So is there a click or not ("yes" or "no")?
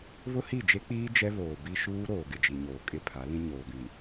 no